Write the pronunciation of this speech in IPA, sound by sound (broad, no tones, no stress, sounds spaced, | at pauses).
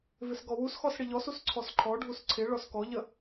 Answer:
v ɪ s ɡ ɔ w u s x ɔ s ɽ ɪ ʎ ɔ s u s ǀʰ ɔ s ǃʰ ɔ ɖʱ u s ǀʰ ɪ ɭ ɔ s k ɔ ʎ ə